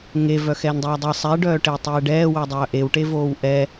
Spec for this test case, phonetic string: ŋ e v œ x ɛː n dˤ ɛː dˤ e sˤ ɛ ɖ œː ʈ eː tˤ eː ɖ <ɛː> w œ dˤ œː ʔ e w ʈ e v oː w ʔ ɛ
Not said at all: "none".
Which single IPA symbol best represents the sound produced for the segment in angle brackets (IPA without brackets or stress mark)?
ɛː